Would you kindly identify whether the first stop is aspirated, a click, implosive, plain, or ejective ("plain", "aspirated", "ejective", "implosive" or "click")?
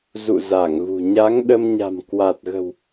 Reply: implosive